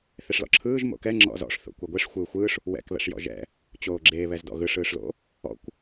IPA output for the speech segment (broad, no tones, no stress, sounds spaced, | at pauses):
θ e ʂ l ɔ̰ ǁʰ ɯː ʒ m o̰ k ɛ ŋ͡ǁ ɔ̰ z ɔ̰ ʂ θ o̰ kʷ ɛ ɡʷ e ʂ xʷ ɯː xʷ ɯː ʂ | w ɛ̰ k β ɛ̰ ʂ j ɔ̰ ʒ ɛ̰ | t͡ɕ oː ɡ͡ǁ e β ɛ z d ɔ̰ ɣ ɯ ʂ ɯː ʂ l o̰ | ɔ̰ kʷ